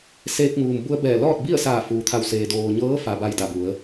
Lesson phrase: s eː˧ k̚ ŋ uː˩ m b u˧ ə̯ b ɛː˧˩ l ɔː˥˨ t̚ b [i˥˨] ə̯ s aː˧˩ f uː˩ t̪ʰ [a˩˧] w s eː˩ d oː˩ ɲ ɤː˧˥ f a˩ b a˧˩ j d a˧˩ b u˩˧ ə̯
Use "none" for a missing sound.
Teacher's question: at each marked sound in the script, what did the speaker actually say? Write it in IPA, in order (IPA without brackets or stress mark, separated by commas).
i˥˨, a˧˩